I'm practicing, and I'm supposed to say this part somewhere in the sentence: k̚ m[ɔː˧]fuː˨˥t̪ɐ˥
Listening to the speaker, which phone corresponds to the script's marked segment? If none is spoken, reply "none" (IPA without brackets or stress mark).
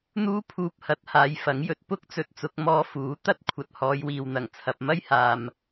ɔː˧